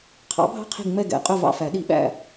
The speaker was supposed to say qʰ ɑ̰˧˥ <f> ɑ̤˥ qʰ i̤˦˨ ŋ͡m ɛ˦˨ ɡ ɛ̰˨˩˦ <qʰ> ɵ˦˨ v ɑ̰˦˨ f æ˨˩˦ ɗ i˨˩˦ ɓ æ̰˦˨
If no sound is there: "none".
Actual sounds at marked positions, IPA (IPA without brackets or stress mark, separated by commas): bʱ, qʼ